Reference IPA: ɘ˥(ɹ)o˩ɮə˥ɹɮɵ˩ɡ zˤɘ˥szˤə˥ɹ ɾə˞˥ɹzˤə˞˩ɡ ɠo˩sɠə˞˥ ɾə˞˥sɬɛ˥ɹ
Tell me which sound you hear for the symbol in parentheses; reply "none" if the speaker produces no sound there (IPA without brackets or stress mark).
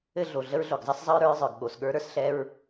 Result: ɮ